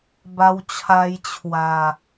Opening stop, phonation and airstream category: plain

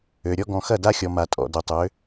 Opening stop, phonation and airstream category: plain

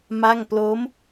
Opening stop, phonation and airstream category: plain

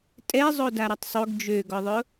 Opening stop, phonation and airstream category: ejective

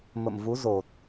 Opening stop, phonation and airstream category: plain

